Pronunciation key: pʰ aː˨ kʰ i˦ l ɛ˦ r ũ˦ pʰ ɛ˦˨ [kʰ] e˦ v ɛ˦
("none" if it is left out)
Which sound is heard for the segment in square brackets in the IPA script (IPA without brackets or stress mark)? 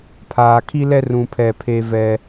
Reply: pʰ